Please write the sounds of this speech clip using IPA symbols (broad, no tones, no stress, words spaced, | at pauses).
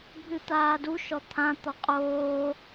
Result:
bʱɨt̪aːduʃɔ t̪ʰãt̪ɔ qʼoː